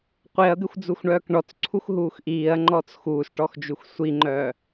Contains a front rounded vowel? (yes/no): yes